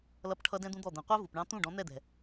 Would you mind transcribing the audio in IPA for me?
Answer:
l ʌ˧ p ʈʰ ʌ˧ d ɛ̃˦ d̪ ũ˦ d̪ ɔ˦˨ d̪ ɛ̃˨ qʷ æ˦ v u˨ p ɳ ɑ̃˧ t̪ ũ˦˨ ɖ ɔ̃˨˦ n̪ ɛ˦˨ d̪ ɛ̤˨

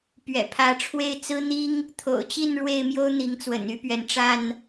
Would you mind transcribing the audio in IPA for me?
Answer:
p ɥ ɛ̰˨˩ pʰ ä˨˦ ʈ͡ʂʰ w e˥˨ ɪ̯ t͡s ɹ̩˦ n̪ i˦ ŋ | t̪ʰ o̰˨˩ ʊ̯ t͡ɕ i˥˨ n ɻ w e˥˨ ɪ̯ m j o˦ ʊ̯ n̪ i˨˦ ŋ t͡s w ə̰˨˩ n y˥˨ p ɥ ɛ˩ n ʈ͡ʂ a˥˨ n

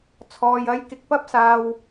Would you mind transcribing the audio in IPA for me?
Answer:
t͡sʰ ɔː˨ j ɐ˧ j k ɪ˧ k̚ p ɐ˥ p̚ s aː˧ w

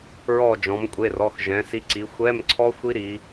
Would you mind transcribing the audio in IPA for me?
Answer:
ɹ ɔ˦˨ d͡ʒ ɔ̃˩˧ m kʷʼ e˩˧˩ r ɔ˩˧˩ x ʒ ɛ̃˩˧ s i˨˥ ǀ i˩˧ xʷ ɛ˧˥˧ m ǀʰ ɔ˦˥ xʷ i˦˥ ɾ i˩˧

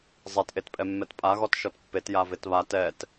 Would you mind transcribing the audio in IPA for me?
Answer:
zˤ ɛ t ʔ e t pʼ ɛ mː ɛ t pʼ a ɣ ɔ t ʃ ɔ t pː e t j a v e t β a t ɛ t

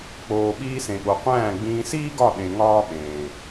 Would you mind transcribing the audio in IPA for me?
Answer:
k͡p oː˧ ɓ iː˧ s ẽ˨ ɠ o˨ qʷ æ̃ː˦˨ ɡ͡b ĩː˧ s iː˦ ɡ ɒ˦˨ ɗ ẽ˧ ŋ ɒː˦ ɓ ẽː˨

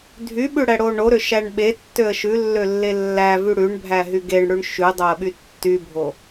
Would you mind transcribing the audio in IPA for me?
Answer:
dʱ y ɓ ʉ ɽ æ ɽ o ɳ o ɾ ø ʃ æ ɳ ɓ e tː ø ə̯ ʃ ʉ lː ø lː e lː æ v y ɽ ʉ ɳ bʱ æ ɦ y ɡ e ɳ ɽ ʉ ɳ ʃ ʉ dˤ o ə̯ ɓ y tː y bʱ o

